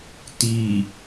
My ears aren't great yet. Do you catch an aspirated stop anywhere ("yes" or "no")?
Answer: no